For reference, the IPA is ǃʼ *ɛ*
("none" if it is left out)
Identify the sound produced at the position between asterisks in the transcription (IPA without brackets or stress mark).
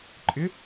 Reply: ɪ